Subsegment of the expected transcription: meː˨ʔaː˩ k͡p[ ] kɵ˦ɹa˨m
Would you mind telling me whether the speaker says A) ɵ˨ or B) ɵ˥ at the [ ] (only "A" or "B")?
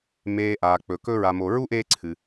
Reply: A